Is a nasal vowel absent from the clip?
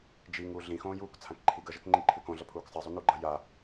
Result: no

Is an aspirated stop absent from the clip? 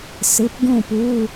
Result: yes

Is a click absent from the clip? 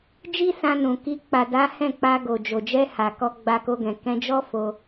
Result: yes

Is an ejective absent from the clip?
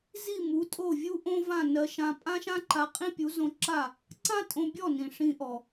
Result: no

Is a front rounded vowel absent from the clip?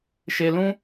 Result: yes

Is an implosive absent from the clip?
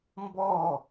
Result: yes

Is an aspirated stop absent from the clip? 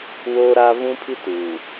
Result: no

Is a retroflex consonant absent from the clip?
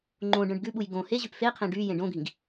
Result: no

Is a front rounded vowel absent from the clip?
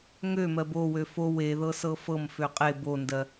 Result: no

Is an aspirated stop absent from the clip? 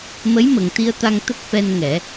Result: yes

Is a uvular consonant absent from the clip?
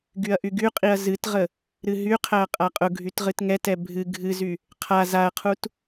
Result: no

